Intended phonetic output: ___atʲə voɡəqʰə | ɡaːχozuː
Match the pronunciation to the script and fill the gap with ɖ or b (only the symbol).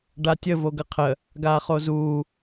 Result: ɖ